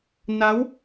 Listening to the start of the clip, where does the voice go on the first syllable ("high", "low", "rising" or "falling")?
rising